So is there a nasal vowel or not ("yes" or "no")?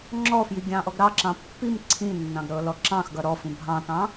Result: yes